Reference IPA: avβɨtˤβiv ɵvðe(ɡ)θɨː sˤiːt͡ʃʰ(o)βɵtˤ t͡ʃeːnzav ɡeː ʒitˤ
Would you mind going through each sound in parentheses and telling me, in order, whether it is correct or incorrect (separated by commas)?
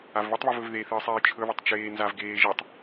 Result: incorrect, incorrect